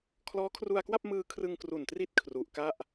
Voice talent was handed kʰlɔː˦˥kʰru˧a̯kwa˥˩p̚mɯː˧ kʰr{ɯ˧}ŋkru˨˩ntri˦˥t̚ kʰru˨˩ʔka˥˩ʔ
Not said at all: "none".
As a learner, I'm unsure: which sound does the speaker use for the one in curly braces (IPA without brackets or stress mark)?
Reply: ɯ˧